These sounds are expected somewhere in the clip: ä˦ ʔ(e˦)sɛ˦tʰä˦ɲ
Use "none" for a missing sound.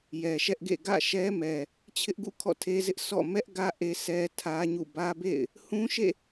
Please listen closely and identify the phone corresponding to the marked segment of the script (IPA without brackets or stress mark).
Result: e˦